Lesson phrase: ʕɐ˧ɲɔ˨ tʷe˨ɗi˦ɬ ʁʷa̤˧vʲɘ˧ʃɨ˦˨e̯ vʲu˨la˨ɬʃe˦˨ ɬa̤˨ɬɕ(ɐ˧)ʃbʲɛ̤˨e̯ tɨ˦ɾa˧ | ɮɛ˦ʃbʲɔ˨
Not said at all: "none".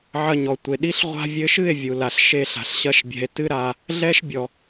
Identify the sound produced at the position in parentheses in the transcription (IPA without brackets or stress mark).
ɐ˧